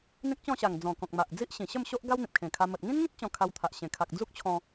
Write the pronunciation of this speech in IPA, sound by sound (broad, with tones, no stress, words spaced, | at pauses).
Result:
n̪ĩ˦k̚t͡ɕɔ̃˥˧ɕa˨˩ŋ d͡zɔ̃˨˩kɔ̃˨k̚ma˨ʔd͡zi˦ʔ ɕĩ˨˩ɕə˥˧mɕo˦ʔ ɡa˦wn̪ĩ˨p̚ kʰẽ˨˩kʰa˧ mə˨t̚ŋĩ˦nŋĩ˦t̚ t͡ɕɔ̃˧kʰa˧wt̪ʰa˨ʔ ɕẽ˨˩kʰa˨k̚ d͡zu˦k̚t͡ɕʰɔ̃˧